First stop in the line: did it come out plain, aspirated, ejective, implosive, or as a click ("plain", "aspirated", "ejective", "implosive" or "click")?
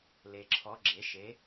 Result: click